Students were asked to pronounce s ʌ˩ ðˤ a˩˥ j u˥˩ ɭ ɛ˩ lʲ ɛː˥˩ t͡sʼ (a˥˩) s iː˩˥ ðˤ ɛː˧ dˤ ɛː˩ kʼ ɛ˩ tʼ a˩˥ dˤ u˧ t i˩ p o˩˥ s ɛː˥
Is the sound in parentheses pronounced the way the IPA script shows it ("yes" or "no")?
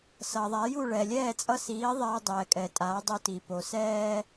no